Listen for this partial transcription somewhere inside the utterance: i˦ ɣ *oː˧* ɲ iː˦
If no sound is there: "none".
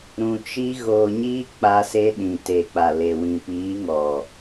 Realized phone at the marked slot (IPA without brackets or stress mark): oː˧